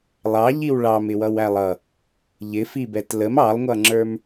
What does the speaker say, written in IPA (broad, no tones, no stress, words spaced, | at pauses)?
lˠɑʎiw ɭɑmɪ wʌwælˠʌ | ʎɪfibɛt ləm ɑlˠŋʷʌŋ͡ǁə˞m